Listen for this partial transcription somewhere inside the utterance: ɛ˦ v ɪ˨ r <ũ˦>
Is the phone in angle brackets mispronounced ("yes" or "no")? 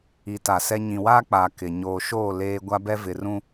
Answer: no